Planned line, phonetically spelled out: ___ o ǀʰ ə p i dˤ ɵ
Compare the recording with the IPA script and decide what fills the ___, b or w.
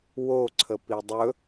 w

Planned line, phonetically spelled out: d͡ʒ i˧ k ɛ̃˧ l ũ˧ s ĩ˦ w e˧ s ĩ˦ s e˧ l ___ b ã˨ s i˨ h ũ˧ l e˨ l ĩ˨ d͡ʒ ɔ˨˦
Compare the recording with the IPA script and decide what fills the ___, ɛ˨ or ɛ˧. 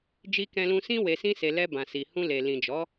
ɛ˧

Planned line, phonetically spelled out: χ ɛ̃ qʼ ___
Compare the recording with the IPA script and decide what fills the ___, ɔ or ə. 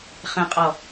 ɔ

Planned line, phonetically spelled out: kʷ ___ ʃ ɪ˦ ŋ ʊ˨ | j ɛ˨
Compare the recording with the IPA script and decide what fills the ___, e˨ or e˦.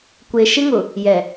e˨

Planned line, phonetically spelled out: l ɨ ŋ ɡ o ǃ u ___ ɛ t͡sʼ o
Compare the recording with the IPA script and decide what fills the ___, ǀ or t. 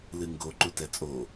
t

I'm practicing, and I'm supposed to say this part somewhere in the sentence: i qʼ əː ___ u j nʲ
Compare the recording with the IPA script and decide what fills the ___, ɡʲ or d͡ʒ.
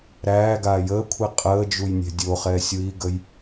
d͡ʒ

